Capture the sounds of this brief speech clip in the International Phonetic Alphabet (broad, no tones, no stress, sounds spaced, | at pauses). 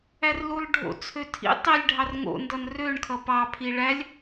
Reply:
æ r l u lˠ ɖʱ o̰ t͡sʰ ø tʰ ḭ tˤ i lʲ ɖʱ ɑ r ŋ o̰ n d ʌ n r ø ɳ kʰ ʌ p ɑ pʰ i ɭ æ lʲ